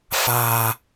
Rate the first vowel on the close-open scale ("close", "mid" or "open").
open